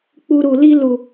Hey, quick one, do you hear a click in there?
no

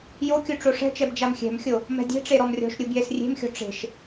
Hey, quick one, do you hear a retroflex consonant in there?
yes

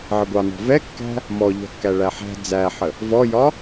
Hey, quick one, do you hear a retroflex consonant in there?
yes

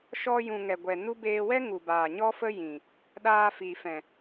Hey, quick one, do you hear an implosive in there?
yes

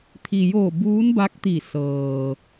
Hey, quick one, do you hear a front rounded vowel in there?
no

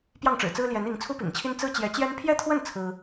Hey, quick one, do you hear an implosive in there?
no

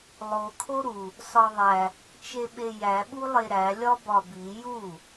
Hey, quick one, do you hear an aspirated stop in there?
yes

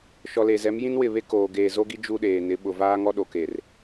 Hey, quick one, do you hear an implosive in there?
yes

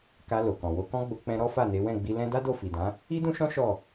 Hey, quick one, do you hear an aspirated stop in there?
no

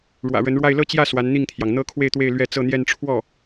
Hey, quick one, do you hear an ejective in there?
no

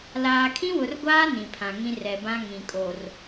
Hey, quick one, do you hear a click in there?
no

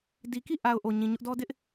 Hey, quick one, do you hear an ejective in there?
no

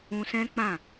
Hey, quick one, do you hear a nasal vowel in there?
yes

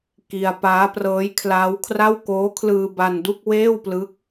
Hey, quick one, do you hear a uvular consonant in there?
no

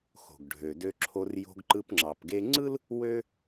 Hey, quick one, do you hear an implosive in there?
no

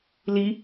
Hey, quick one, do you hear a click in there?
no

